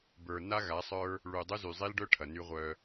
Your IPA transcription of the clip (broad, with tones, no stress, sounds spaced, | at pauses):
b ə˞˨ n a˦ ɣ a˨˦ sˤ ə˞˦ | ɭ u˨ dˤ u˦ z y˨ zˤ i˦ l ɖ œ˦ ʈʰ ɐ˨ n y˦ ʁʷ œ˦